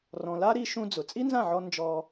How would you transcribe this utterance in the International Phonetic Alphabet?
r ɔ̃˨ l a˦ ɾ i˧ ʃ ũ˦ d͡z ʊ˨ t͡sʼ i˦ n z ã˦˨ ʕ ɔ˧ n d͡ʒ ɔ˧

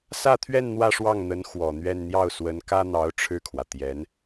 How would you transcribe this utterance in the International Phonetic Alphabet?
s ä˥˧ t̪ʰ ɥ ɛ˥˧ n n̪ w ä˥˧ ʂ w ɑ˥˩ ŋ n̪ ə˧˥ n x w ɔ˨˩ n̪ ɥ ɛ˥˧ n n̪ j ɑ˥˩ ʊ̯ s w ə˧˥ n k ä˥ n̪ ɑ˧˥ ʊ̯ ʈ͡ʂʰ ɻ̩˥˩ kʰ w ä˩ t̪ j ɛ˧˥ n

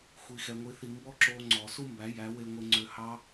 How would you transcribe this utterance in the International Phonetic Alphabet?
xʷ i˧ x ɛ˧ ŋʷ i˧ θ i˧ m b ɔ˦ ǁ oː˧ ŋ͡ǀ ɔː˨ s u˦ m b æ˨˦ j æ˨˦ w e˦ ŋʷ e˦ ŋ͡ǀ ø˦ h ɑ˦

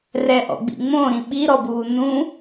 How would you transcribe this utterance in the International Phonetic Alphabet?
r ɛ ʔ ɔ̰ ɡ͡b ḭ ŋ͡m õ ɾ ĩ ɓ i ɾ ɔ b uː n ũ

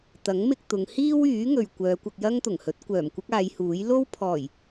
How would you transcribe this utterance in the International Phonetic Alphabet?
t̪ ɐ˨˥ ŋ m ɪ˧ k̚ t̪ ʊ˨˧ ŋ h iː˥ w yː˨˥ ŋ ɵ˨ ɥ kʷ œː˨˧ kʷ ɐ˧ k̚ j ɐ˥ ŋ t̪ ʊ˨˩ ŋ h ɵ˨˥ t̚ kʷ œː˨˩ m kʷ ɪ˥ k̚ aː˨˧ j h uː˨˥ j l o˥ w pʰ ɔː˨˩ j

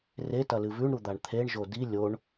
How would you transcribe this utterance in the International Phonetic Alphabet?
r e t ɐ l ɨ v ʉ ɳ ɾ u d̪ a ɳ t̪ʰ e ɳ ʒ o d i lʲ o ɳ

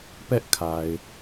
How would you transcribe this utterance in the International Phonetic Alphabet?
p ɛ˦ ʔ kʰ a˨ ɪ̯

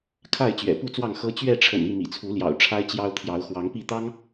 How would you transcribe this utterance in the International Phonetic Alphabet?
kʰ a˥˨ ɪ̯ t͡ɕ ɥ ɛ̰˨˩ p u˥˨ t͡s w ɑ˥˨ ŋ x ɤ˦ t͡ɕ ɥ ɛ˥˨ ʈ͡ʂʰ ə̰˨˩ n i˥˨ m ḭ˨˩ t͡sʰ u˨˦ l j ɑ̰˨˩ ʊ̯ ʈ͡ʂʰ a˦ ɪ̯ t͡ɕ j ɑ˦ ʊ̯ t̪ʰ j ɑ˨˦ ʊ̯ x w ɑ˨˦ ŋ p i˥˨ t̪ ɑ˦ ŋ

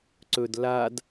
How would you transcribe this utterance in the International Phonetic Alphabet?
ǀ ɵ d l a d

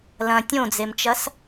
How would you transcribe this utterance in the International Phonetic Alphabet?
l ɐ̃ tʲ õ d͡z e m t͡ʃ ɐ s

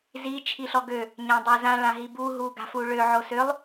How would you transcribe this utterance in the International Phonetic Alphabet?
z i t͡ʃʰ i ɬ ɔ ɡ ø | ɲ ã dˤ ø z ã ɭ ã ɦ i b u ɦ u ɡ a̤ f u ɭ ø ʕ o s ø lˠ

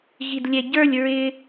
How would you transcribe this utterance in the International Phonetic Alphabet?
ɣ i d lʲ ɛ ɟ ə˞ lʲ ɹ ɪ

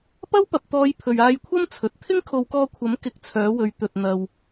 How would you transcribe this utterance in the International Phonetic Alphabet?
p ɐ˥ w p ɐ˨ p̚ t̪ ɔː˨˧ j pʰ ɵ˨ ɥ aː˧ j kʷʰ ɐ˥ m t͡sʰ ɵ˨ t̚ t̪ʰ ɪ˥ ŋ kʰ o˨˧ w k ɔː˧ kʷʰ ɐ˨˥ m k ɪ˧ k̚ t͡sʰ œː˨˥ w ɵ˨˧ ɥ t̪ ɵ˨ t̚ n̪ ɐ˨ w

